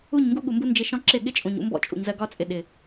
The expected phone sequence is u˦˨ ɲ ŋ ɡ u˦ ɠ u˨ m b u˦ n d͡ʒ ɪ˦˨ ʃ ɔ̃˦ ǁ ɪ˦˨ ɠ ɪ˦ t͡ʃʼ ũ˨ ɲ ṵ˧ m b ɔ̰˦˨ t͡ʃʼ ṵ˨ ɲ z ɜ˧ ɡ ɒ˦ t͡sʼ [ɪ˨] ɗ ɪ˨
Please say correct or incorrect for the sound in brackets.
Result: correct